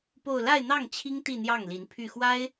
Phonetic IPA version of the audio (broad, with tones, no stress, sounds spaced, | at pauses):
p o˥˧ ʊ̯ l a˥˧ ɪ̯ n̪ ɑ˥˩ ŋ t͡ɕʰ i˥ ŋ t̪ i˥˧ n̪ j ɑ˥˩ ŋ l i˧˥ n pʰ y˥˩ x w a˥ ɪ̯